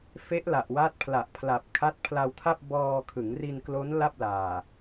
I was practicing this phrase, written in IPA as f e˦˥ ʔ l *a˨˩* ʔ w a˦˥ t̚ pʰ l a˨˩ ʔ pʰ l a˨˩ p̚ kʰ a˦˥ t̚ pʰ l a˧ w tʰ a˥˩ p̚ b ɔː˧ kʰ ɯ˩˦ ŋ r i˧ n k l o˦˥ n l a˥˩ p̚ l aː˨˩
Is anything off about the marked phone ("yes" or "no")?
no